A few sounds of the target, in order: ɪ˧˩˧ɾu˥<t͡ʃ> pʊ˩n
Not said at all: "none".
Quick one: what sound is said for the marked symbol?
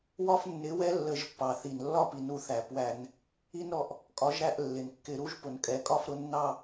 ʒ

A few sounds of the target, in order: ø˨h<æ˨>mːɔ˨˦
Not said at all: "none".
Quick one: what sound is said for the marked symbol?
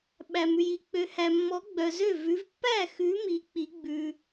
æ˨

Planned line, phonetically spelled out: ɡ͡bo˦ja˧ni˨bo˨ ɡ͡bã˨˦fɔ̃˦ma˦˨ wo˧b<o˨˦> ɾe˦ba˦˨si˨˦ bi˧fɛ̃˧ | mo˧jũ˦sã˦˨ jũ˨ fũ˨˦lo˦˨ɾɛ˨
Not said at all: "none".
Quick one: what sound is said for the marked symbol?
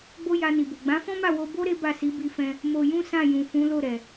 o˦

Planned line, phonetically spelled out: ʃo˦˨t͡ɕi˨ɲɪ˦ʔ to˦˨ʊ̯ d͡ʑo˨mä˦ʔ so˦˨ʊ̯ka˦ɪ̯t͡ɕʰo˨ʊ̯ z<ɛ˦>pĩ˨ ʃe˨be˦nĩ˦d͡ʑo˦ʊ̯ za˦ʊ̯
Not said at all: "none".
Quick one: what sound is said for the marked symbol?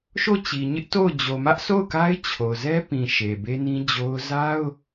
ɛ˦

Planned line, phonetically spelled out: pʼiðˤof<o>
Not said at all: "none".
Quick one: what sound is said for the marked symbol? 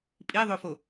o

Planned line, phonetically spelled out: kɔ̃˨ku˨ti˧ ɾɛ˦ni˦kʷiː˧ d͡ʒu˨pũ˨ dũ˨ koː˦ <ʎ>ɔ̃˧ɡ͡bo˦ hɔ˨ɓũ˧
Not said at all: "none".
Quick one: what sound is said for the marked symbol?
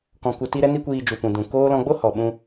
l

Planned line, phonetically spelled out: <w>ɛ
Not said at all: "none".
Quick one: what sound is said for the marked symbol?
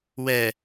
w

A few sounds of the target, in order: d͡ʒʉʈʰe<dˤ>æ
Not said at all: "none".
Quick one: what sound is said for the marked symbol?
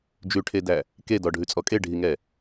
d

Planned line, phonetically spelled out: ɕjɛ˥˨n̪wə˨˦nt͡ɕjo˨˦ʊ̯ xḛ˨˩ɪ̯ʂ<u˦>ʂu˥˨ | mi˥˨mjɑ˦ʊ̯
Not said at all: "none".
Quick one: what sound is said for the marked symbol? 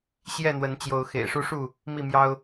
u˦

